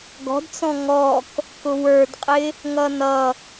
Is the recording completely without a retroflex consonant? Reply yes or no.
yes